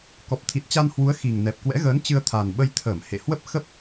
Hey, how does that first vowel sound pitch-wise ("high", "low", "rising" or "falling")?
low